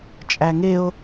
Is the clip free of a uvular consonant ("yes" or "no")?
yes